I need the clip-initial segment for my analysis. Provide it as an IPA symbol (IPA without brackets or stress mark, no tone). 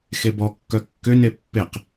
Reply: x